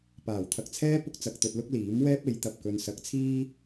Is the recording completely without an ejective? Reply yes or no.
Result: yes